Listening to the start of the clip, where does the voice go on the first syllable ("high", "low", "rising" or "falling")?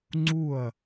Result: falling